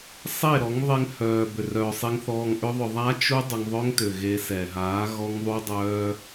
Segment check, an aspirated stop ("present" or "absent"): absent